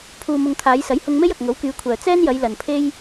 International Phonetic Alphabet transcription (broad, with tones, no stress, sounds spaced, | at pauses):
pʰ uː˧ m ʊ˧ ŋ t̪ʰ aː˨˧ j s ɐ˨˥ j h ʊ˧ ŋ m e˥ j ɐ˨ k̚ ŋ o˨˥ w k yː˨˧ kʷʰ œː˨ t͡s ɛː˥ n j ɐ˨˧ j l ɐ˨ n pʰ e˥ j